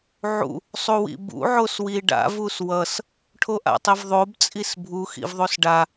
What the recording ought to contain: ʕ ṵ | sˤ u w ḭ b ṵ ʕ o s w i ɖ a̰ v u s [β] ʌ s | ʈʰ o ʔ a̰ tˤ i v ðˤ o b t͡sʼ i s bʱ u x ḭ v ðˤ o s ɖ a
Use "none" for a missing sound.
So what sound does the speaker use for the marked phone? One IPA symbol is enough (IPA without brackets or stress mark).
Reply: w